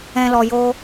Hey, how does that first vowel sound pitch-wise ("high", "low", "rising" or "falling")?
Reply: low